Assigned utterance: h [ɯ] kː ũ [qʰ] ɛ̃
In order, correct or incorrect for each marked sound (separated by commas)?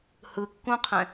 correct, correct